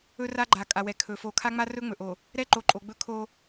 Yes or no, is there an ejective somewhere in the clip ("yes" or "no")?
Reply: yes